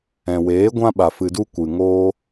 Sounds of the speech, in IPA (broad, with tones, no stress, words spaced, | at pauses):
ɛ̃˨weː˨˦ɡʷã˦ɓa˨ fɨ˨du˧ kʷɨ˨ŋoː˦